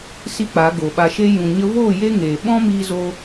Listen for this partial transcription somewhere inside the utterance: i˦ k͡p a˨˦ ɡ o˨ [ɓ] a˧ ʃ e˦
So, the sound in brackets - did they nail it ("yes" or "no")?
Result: yes